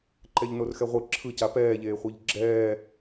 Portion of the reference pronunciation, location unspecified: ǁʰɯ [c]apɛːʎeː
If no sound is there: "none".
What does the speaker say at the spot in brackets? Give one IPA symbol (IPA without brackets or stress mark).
c